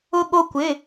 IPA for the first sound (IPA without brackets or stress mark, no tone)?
ʊ